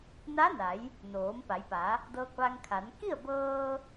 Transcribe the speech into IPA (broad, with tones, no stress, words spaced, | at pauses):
na˧˥na˩˧j | noː˩˧mpa˩˧jpa˩˧ | dɤː˧k̚ʋa˧ŋkʰa˩˧n ki˥˨ə̯bɤː˧